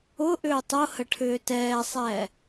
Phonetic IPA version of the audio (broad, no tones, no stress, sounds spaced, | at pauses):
ʊ ʔ ʏː tˤ ʊ h ə ʈʰ ʏː t ɛː sˤ ɛː